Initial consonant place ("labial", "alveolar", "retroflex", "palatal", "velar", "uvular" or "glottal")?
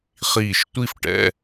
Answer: uvular